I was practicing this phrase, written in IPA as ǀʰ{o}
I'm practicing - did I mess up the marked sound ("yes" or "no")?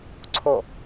no